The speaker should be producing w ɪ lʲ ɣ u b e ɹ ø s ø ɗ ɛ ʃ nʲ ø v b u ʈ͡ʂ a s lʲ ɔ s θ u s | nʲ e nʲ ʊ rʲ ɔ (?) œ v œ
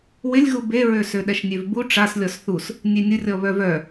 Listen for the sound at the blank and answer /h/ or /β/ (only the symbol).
β